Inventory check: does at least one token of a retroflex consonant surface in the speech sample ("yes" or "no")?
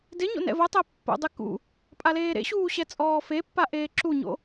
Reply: no